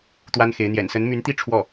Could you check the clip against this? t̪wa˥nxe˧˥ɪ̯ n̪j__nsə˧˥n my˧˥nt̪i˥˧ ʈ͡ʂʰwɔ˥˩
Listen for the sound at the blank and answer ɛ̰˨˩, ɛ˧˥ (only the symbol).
ɛ̰˨˩